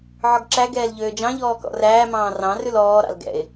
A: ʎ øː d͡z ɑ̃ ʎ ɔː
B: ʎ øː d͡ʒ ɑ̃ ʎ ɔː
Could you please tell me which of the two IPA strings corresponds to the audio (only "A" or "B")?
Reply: B